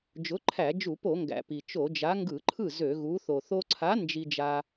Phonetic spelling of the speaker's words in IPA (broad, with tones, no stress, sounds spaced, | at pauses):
d͡ʒ ʊ˨˥ ǃʰ æ˧˩˧ d͡ʒ u˧˩˧ p o˧˩˧ ŋ ɡ æ̰˩ p i˩ t͡ʃ o˧˩˧ d͡ʒ a˨˥ ŋ ɡ ɯ˧˩˧ ǃʰ ɯ˥˩ z ø˧˩˧ ɣ u˨˥ θ o˩ θ o˧ ǀʰ a˨˥ n d͡ʒ i˧ d͡ʒ a˧